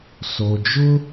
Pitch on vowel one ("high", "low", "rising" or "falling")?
low